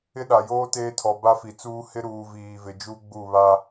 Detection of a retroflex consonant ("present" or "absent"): absent